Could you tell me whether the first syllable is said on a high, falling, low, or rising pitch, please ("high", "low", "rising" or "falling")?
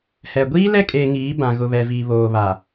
low